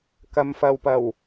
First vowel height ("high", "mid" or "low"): low